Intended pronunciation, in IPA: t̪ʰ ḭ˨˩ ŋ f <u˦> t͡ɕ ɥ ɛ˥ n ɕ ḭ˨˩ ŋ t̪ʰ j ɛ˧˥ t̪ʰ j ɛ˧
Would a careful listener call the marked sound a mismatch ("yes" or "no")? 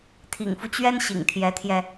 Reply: no